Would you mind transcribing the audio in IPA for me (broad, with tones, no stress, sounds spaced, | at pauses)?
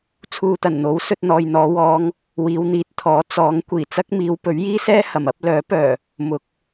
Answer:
t͡sʰ uː˧ t̪ ɐ˨˩ n n̪ o˨˥ w s ɵ˧ t̚ n̪ ɔː˨ j n̪ ɔː˨˧ w ɔː˨˧ ŋ | w iː˨˧ w n̪ iː˨˥ t̚ t̪ʰ ɔː˨˥ t͡s ɔː˨˥ ŋ kʷ iː˨˩ t͡s ɐ˥ k̚ m iː˨˧ w p ɵ˨˥ ɥ j iː˥ s ɛː˥ h ɐ˨˩ m ɐ˨˥ p̚ l œː˨˥ p œː˨˩ | m ʊ˨˥ k̚